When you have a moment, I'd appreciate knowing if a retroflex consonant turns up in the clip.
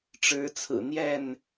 yes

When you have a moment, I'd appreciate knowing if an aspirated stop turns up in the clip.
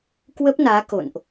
no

